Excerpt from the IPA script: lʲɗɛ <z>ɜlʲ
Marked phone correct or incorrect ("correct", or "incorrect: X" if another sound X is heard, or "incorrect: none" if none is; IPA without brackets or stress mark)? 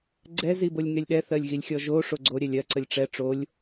incorrect: θ